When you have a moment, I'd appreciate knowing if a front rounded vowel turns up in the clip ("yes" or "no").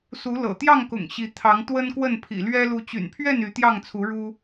yes